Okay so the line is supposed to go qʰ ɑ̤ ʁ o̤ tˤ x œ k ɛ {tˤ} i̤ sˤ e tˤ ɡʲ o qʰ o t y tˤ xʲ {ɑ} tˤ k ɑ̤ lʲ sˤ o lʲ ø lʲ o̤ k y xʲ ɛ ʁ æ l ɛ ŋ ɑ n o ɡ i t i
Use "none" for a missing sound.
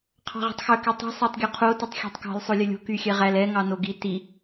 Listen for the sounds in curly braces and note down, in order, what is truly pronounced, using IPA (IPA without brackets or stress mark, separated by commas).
tˤ, ɑ̤